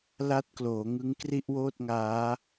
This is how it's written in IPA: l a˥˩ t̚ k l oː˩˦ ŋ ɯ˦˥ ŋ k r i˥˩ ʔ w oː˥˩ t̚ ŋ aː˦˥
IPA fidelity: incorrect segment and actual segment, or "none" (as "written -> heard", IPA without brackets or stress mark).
none